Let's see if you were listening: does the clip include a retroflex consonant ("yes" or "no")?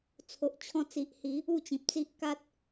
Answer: no